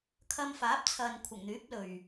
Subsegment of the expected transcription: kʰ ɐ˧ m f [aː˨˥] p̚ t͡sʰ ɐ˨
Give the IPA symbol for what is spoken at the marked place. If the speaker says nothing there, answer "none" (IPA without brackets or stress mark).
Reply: aː˨˥